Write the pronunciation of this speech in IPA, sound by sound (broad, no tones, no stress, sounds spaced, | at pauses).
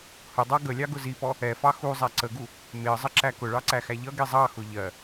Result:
h ʊ dˤ ɑ ɡ ə lʲ ɑ ɡ ʊ z i p ɔ | ɛ f ɑ x u zˤ æ ǀ ə ɡ u | m ɪ ə̯ zˤ ə ǁ æ k ʊ ɭ ɑ ǀ æ x æ ʎ ʌ ɡ i zˤ ɑ x ʊ ʎ ɜ